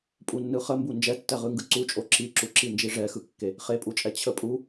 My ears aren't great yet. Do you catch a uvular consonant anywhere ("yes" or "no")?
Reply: yes